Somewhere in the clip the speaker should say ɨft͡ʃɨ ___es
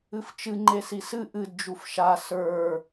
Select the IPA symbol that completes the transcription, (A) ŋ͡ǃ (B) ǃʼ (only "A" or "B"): A